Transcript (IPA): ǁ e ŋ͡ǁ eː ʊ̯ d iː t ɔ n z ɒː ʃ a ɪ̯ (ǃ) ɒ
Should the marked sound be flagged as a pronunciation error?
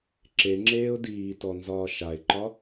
no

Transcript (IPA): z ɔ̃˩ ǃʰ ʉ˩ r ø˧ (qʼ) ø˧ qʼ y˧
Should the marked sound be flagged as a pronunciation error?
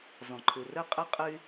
no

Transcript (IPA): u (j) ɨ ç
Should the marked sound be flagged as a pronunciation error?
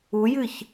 no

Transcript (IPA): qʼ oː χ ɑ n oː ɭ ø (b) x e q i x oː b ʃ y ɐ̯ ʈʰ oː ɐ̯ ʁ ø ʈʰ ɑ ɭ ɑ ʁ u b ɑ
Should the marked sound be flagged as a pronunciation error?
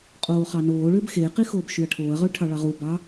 no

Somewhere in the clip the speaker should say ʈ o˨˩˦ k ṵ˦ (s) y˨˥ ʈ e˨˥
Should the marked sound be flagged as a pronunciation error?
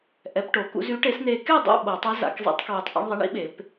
yes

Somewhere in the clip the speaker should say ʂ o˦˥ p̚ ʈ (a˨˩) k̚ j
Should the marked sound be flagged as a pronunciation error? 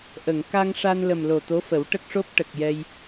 yes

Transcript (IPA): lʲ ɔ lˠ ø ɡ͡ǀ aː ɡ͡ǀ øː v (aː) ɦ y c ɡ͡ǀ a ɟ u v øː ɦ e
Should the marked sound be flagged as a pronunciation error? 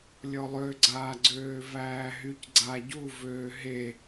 yes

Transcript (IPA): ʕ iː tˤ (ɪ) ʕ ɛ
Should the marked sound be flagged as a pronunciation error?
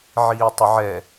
no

